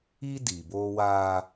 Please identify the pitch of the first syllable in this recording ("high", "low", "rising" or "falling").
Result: high